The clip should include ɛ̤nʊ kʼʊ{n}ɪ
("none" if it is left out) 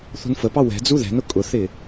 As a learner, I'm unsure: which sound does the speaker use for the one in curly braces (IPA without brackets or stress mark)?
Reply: θ